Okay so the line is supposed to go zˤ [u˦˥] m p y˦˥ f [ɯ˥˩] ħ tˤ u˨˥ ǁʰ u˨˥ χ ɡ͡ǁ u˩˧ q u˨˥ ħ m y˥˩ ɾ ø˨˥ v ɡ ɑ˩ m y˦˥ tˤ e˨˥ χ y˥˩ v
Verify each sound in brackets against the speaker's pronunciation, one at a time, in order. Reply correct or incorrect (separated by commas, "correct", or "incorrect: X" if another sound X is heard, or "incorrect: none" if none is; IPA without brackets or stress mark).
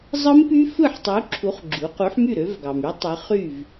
incorrect: ɯ˦˥, correct